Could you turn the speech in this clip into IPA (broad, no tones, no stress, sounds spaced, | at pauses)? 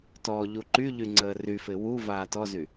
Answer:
t ɔ ʎ u ǃ y ʎ y ŋ͡ǀ əː r y f ɪ w u v aː t ɔ z y